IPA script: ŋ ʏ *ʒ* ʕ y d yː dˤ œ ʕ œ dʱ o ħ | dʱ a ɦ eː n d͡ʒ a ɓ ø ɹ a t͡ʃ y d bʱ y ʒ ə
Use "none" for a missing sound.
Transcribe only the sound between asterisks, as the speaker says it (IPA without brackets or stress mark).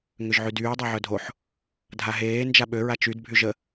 ʒ